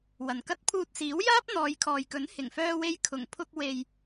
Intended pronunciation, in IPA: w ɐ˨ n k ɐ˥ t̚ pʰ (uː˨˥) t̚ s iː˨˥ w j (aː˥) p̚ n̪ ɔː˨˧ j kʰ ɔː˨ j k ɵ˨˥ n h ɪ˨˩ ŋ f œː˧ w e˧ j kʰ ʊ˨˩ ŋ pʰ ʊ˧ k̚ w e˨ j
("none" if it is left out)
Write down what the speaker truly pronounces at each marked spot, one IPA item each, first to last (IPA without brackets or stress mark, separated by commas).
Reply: uː˧, aː˥